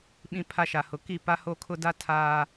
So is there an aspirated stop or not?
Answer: yes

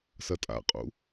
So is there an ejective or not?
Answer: yes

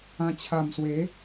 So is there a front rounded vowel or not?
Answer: no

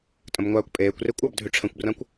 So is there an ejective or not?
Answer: yes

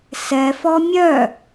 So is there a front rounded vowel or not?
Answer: yes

